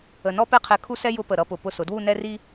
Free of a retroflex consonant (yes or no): yes